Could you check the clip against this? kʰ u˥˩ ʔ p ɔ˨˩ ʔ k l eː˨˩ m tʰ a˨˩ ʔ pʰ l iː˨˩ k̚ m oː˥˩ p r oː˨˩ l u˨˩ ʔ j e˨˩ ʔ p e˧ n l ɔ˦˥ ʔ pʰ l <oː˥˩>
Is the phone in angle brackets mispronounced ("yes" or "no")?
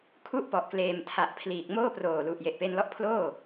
no